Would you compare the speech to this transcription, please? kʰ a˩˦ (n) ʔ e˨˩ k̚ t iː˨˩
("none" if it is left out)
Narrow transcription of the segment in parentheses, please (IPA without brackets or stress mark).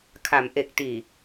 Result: m